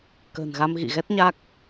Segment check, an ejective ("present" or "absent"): absent